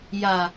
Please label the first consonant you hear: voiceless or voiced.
voiced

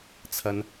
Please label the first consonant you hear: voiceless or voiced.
voiceless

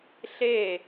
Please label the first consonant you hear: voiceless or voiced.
voiceless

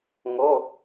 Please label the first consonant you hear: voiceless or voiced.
voiced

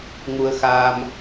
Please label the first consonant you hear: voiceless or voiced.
voiced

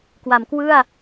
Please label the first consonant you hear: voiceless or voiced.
voiceless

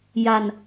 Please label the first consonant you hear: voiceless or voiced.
voiced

